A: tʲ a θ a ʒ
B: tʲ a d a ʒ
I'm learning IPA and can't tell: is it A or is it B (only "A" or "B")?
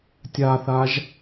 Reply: A